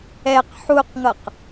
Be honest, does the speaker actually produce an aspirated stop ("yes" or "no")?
no